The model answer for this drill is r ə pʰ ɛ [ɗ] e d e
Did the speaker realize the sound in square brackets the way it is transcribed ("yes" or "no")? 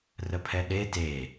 yes